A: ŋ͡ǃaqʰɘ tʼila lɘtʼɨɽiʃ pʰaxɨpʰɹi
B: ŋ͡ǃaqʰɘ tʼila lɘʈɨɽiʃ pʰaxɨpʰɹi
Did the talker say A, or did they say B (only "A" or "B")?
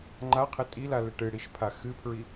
B